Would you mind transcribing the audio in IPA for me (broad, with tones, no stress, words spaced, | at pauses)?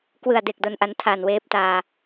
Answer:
kwɯ˨˩a̯de˨˩k̚ do˧nʔa˧n tʰaː˨˩nweː˦˥p̚taː˧